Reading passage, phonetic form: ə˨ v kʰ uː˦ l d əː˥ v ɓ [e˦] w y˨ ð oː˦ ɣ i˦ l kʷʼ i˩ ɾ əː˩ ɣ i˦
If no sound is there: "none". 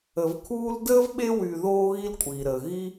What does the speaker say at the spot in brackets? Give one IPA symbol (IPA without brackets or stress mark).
e˦